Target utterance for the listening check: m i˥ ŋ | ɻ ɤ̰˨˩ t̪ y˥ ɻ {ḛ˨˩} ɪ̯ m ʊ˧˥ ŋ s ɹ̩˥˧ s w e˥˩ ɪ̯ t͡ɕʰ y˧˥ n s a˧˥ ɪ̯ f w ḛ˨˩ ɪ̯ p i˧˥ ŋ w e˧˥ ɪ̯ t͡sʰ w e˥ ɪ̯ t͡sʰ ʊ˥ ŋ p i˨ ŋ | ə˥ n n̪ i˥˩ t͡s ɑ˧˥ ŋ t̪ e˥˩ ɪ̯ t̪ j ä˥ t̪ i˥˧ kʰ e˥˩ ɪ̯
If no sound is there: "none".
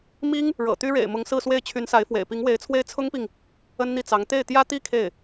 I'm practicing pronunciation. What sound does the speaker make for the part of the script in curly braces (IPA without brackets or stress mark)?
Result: ḛ˨˩